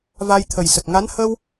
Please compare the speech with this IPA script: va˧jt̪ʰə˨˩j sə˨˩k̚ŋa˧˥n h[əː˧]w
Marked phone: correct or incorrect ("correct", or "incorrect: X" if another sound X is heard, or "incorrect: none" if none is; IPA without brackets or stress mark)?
correct